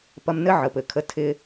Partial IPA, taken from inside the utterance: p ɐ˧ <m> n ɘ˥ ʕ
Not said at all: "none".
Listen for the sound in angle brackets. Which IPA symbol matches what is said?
m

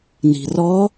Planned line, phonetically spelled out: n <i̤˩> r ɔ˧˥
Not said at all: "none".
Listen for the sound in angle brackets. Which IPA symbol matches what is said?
i̤˩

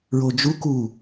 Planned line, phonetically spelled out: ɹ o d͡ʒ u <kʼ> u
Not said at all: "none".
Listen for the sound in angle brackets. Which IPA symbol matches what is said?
k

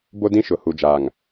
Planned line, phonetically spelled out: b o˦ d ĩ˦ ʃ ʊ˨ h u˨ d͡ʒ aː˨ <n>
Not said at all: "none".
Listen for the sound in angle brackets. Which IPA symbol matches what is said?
ŋ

